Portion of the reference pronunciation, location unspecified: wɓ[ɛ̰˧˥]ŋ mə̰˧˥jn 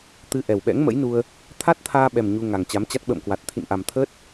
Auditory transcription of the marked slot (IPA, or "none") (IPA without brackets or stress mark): ɛ̰˧˥